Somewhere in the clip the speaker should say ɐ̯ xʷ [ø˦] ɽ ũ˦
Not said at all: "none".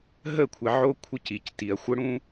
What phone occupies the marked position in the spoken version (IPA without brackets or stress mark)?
ə˦